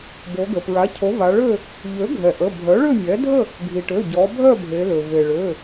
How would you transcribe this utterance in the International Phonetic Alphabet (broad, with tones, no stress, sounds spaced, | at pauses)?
b o˩˧ ɡ ə˩ p ɹ a˩˥ cʰ o˩˥ v a˩˧ ɭ ø˥˨ | ʎ ø˩˥ ɡʱ ɛ˩ ʔ ə˩˧˩ bʱ œ˩˥ ɭ ø˥˨ mʲ ɛ˩˥ dʱ ə˥˨ | ɡʱ i˩ ʈ ø˩˧˩ ɟ ɔ˩˧ bʱ œ˥˨ bʱ e˩˧ l ø˩ v e˩ ɭ ø˩˧˩